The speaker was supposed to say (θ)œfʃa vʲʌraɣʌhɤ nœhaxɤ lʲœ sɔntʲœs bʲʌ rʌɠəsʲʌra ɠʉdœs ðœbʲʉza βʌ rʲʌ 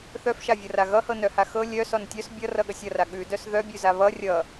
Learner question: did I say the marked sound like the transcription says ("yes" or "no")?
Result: yes